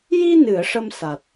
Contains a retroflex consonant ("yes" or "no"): yes